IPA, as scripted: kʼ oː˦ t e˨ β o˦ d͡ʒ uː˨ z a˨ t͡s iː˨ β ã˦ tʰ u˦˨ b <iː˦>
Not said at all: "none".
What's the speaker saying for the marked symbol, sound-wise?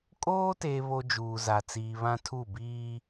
iː˦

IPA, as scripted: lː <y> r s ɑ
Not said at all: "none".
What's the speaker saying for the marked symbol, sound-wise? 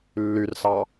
y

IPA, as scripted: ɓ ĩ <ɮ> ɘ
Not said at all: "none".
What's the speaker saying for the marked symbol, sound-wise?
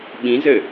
z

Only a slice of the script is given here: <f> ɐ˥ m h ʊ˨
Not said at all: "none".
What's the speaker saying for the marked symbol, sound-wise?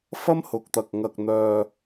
f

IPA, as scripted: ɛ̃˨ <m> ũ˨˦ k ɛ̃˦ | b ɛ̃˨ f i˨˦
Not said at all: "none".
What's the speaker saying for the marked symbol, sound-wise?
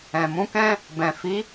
m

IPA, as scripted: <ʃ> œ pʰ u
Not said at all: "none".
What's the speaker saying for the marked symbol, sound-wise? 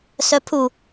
s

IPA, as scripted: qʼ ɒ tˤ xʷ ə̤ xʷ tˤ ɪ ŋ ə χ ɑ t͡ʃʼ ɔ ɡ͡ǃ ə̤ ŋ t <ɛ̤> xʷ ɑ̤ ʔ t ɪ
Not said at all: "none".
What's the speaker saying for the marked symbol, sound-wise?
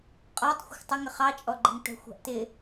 ɛ̤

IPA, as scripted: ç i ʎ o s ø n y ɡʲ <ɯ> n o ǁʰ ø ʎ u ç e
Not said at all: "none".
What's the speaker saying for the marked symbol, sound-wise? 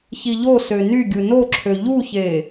ɯ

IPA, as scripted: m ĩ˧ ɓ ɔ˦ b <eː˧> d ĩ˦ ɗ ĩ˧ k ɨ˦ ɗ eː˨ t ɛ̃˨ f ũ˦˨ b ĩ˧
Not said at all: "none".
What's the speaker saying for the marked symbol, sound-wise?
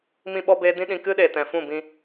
eː˦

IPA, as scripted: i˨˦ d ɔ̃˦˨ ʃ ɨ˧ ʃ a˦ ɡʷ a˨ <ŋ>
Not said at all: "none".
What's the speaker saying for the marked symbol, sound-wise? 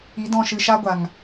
ŋ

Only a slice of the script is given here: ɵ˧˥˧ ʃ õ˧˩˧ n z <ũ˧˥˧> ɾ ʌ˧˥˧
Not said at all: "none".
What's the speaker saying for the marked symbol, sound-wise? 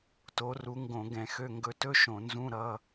ũ˧˥˧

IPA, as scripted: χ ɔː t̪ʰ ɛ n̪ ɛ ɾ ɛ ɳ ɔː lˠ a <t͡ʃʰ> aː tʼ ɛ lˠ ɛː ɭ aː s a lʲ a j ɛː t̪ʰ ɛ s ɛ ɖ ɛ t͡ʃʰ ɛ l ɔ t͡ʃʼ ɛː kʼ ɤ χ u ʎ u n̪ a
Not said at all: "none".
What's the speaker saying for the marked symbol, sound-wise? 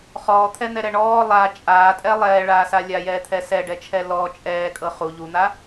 t͡ʃʼ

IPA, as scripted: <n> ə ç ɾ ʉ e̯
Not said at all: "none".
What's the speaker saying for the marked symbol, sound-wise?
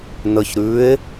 n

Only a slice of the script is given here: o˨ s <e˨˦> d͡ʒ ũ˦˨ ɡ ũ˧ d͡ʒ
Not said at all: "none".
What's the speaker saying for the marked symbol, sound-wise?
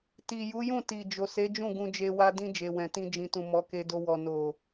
e˨˦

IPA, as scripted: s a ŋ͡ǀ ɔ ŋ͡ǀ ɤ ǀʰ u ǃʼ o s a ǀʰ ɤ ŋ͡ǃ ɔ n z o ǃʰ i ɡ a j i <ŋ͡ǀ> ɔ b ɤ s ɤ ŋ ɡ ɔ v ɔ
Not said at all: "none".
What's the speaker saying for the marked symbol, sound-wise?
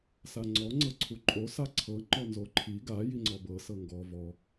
ŋ͡ǀ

